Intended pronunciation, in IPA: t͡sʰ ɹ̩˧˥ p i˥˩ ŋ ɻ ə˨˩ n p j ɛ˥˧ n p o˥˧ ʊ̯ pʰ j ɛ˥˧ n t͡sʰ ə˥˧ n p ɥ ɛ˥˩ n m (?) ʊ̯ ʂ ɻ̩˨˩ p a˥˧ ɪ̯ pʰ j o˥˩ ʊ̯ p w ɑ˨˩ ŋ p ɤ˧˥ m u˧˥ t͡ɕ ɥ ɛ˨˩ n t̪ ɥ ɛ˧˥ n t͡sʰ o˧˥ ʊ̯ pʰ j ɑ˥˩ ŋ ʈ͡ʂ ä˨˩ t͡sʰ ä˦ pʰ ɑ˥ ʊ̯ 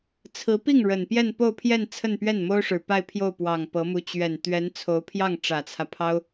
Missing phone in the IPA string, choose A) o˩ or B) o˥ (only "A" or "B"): B